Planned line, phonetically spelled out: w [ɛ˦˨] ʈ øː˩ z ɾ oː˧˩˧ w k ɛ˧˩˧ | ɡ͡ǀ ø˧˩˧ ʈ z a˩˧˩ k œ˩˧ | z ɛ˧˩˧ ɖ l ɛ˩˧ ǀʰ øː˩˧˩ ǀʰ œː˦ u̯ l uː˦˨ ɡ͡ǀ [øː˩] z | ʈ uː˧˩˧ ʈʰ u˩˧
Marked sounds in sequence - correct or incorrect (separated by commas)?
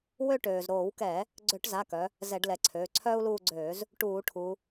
incorrect, incorrect